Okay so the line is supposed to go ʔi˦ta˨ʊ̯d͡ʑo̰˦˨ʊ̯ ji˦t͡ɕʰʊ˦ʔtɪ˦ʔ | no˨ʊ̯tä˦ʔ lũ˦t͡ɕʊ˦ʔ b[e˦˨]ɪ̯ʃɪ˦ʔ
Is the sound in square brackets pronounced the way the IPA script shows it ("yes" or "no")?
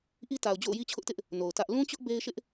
no